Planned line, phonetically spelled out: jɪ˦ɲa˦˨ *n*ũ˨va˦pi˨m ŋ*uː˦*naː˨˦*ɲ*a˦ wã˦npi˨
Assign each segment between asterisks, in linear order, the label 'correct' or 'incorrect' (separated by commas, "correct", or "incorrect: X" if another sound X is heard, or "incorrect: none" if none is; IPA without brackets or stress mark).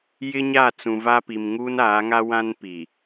incorrect: t͡s, correct, incorrect: ŋ